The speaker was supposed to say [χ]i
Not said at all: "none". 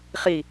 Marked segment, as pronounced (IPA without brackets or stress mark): χ